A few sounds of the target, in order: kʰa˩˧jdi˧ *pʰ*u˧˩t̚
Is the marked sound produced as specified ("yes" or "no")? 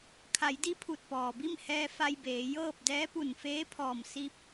yes